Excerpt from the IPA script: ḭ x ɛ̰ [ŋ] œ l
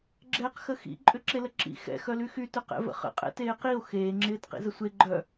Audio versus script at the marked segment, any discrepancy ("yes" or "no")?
yes